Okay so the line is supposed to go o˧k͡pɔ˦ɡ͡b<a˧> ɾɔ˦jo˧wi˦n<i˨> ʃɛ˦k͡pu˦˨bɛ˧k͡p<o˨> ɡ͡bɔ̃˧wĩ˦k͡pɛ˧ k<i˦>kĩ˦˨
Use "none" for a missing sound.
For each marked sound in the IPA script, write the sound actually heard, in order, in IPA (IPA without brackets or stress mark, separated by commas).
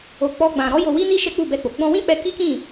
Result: ã˧, i˦, o˨, i˦